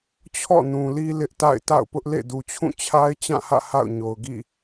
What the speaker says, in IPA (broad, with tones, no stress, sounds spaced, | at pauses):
t͡ɕʰ ɔ̰˦˨ n ũ˨ l i˦ l ɪ˦ ʔ t a̰˦˨ ɪ̯ t a̰˦˨ ʊ̯ p ʊ˦ ʔ l ḛ˦˨ d u˨ t͡ɕʰ ũ˦˨ t͡ɕʰ a˦ ɪ̯ t͡ɕ ã˦˨ h ä̰˦˨ h a̰˦˨ ʊ̯ ɲ o˨ ʊ̯ ɡ ḭ˦˨